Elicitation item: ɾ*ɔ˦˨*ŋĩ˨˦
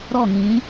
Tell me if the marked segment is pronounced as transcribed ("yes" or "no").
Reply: yes